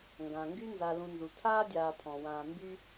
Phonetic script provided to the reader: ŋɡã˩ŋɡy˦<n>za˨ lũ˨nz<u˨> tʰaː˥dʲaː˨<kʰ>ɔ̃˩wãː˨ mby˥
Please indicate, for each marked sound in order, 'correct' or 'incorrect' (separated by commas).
correct, incorrect, incorrect